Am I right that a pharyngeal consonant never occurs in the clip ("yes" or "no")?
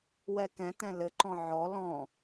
no